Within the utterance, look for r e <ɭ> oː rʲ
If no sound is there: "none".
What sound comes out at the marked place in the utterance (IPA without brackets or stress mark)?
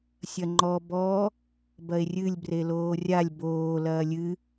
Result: l